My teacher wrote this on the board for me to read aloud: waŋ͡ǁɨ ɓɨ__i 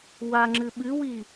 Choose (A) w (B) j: A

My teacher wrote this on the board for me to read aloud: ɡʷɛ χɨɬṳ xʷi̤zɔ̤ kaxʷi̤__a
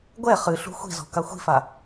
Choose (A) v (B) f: B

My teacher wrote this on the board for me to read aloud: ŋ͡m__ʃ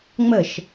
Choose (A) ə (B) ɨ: A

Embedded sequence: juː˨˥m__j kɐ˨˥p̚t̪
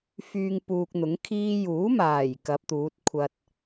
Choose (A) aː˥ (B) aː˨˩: B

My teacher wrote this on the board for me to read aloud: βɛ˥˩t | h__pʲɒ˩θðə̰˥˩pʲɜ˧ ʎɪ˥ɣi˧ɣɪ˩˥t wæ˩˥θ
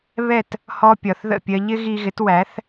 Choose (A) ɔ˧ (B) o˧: A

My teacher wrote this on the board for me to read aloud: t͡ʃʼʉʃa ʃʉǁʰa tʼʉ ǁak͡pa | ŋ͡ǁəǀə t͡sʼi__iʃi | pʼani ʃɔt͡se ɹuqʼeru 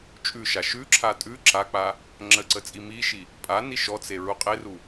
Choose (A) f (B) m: B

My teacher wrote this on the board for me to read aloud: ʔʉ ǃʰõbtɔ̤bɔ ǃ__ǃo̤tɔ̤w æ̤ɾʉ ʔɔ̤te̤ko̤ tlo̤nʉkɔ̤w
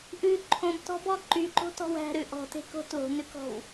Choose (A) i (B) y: B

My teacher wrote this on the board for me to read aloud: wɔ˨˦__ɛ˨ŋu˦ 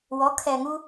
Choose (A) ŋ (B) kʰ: B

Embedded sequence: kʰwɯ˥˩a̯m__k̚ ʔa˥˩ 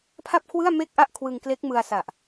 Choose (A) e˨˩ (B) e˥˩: B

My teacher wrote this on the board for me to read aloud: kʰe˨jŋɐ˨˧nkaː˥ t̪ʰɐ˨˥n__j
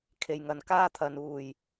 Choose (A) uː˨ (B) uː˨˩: A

